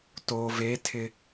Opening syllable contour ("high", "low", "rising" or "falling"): low